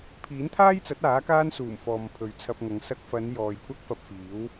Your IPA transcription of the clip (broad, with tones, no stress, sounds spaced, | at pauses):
pʰ iː˨˥ n t̪ʰ aː˥ j t͡s ɐ˨˥ t̚ aː˨˥ k aː˥ n s uː˨˩ m f ɔː˨ m pʰ ɵ˨ ɥ t͡sʰ ɐ˧ p̚ ŋ ɐ˨˧ ŋ s ɐ˧ k̚ f ɐ˨˧ n j ɔː˨ j kʷʰ ɐ˥ k̚ f ɐ˧ p̚ f iː˨˥ w